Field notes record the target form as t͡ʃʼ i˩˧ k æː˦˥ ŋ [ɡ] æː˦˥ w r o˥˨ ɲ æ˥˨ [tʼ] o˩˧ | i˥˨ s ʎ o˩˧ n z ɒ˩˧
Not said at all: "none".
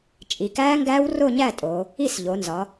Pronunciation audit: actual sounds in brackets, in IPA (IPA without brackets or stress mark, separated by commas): ɡ, tʼ